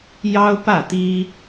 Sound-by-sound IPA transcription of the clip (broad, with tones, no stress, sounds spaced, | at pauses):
j ɑ˥ ʊ̯ p ä˥˩ t̪ i˥